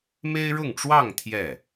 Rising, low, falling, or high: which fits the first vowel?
high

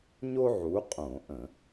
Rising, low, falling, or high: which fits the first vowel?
high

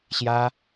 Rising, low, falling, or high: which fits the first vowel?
high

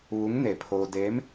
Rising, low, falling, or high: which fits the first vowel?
rising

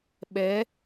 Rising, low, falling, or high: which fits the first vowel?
rising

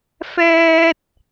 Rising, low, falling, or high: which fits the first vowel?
high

